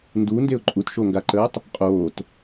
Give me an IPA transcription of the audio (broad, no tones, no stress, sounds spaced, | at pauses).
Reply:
n d u n d e ʊ̯ ǃʼ u t ʃ o ŋ ɡ a ǃ əː tˤ | qʼ oː t